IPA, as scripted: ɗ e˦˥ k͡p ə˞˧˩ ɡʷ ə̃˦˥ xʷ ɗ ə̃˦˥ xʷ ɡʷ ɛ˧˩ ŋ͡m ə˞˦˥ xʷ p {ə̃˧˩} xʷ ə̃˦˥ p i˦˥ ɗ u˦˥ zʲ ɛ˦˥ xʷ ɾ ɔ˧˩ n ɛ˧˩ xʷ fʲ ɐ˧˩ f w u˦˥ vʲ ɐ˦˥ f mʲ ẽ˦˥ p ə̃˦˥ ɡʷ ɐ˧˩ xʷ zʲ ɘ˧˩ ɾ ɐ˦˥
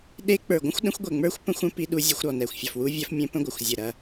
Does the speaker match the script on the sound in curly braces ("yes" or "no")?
no